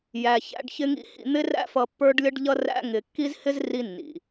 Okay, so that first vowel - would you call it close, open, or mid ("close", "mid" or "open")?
open